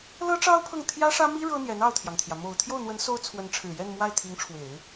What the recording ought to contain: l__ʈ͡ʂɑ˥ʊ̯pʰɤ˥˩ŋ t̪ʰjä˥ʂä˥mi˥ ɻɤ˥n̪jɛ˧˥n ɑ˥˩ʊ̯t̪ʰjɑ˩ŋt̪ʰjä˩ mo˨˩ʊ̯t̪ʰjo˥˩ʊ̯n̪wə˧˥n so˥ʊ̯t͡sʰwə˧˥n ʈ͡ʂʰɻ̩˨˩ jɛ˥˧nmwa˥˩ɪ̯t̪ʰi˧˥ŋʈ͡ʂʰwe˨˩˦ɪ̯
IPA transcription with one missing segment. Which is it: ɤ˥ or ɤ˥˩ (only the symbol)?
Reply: ɤ˥